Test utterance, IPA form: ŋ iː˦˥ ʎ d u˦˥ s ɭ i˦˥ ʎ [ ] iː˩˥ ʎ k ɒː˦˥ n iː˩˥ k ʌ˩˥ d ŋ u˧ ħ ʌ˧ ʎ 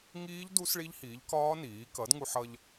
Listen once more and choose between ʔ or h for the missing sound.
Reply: h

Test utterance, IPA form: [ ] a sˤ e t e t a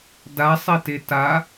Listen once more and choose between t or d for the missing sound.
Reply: d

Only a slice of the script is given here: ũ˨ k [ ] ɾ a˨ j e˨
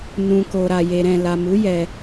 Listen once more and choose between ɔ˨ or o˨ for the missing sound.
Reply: o˨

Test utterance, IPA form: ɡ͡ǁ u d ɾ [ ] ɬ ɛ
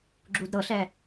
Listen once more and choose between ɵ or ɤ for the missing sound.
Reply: ɤ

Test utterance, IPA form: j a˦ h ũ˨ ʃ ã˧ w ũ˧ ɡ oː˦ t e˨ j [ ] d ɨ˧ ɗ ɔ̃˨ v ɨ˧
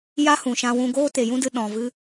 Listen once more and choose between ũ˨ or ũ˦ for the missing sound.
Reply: ũ˦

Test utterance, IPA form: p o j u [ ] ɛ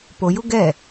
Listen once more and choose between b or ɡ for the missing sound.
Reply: ɡ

